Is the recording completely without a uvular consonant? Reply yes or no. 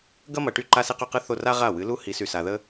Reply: no